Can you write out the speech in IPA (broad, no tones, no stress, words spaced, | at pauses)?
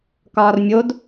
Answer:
kɒːrmʲod